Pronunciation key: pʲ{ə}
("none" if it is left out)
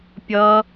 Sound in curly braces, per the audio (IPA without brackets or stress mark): ʌ